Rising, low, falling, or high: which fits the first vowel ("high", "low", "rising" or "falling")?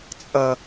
low